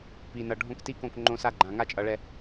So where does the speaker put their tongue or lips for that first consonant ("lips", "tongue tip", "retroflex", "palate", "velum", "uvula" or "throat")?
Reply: lips